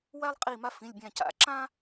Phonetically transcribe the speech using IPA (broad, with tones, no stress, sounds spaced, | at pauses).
w æ˦ lˠ qʼ i˧˩ m a˦ f ĩ˩˧˩ lʲ bʲ æ̃˧˩ c a̰˧˩ ǁ ã˦